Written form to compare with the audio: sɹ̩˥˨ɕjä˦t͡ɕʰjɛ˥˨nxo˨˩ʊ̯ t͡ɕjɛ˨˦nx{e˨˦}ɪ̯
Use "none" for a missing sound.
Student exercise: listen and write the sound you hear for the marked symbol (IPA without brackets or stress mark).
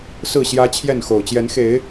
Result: e˨˦